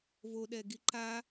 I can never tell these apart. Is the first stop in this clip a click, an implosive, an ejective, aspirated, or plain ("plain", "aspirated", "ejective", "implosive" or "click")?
implosive